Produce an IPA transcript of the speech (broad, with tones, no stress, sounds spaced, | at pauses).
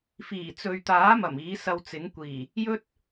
f iː˨˩ t͡s ɵ˨ ɥ t̪ aː˨˥ m ɐ˨˩ m iː˨˥ s ɐ˧ w t͡s ɪ˨˥ ŋ kʷ iː˨˩ | j ɵ˥ t̚